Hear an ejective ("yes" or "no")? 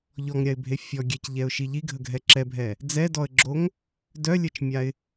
no